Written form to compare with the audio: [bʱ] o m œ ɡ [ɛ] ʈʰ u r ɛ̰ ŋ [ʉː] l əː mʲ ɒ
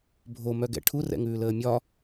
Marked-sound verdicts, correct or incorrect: correct, incorrect: ɛ̰, correct

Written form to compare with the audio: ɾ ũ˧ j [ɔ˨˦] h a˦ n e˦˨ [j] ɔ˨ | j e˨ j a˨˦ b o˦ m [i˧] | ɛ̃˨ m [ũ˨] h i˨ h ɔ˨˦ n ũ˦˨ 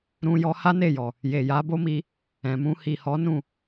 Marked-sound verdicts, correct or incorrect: incorrect: ɔ˧, correct, correct, incorrect: ũ˧

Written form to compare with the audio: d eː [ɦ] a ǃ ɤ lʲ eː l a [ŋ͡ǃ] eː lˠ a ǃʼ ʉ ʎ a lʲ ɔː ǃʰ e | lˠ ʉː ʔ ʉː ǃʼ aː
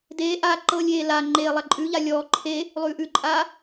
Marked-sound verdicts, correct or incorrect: incorrect: ʔ, correct

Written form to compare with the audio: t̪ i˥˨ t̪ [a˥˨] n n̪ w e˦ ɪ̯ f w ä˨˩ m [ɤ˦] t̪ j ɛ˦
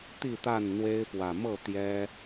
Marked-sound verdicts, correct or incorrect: correct, incorrect: ɤ˥˨

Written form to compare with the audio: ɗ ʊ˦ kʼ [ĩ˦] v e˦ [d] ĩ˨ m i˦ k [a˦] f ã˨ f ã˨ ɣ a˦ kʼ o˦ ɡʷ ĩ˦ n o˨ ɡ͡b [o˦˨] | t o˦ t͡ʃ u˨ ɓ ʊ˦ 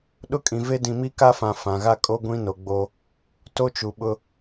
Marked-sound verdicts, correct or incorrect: incorrect: ĩ˨, correct, correct, incorrect: o˦

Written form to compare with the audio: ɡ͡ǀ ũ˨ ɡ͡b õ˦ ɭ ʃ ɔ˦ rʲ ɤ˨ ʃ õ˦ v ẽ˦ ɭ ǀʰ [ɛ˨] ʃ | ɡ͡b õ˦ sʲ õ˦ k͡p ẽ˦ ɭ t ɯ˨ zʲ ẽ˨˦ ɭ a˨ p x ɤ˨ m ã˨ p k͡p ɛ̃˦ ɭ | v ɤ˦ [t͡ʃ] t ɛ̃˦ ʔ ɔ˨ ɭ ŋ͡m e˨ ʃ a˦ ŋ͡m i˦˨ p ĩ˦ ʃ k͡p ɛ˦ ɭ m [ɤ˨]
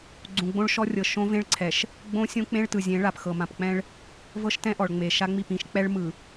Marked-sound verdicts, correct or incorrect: correct, incorrect: ʃ, incorrect: ɯ˨

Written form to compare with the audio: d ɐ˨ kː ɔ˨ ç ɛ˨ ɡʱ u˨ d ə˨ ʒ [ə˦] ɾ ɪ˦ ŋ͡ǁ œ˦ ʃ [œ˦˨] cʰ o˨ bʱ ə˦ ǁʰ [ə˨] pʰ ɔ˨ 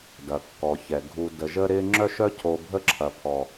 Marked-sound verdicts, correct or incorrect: correct, incorrect: œ˦, incorrect: ɐ˨

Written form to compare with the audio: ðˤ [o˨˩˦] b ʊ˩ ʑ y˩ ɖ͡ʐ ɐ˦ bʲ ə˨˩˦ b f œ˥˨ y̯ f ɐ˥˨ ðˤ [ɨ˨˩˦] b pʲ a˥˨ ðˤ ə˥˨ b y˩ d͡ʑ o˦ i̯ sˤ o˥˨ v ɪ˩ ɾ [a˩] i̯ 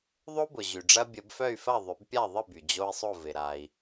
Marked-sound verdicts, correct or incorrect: incorrect: o˦, incorrect: ʏ˨˩˦, correct

